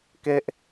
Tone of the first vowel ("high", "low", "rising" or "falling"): high